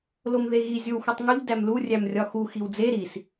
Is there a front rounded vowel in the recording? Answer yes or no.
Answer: no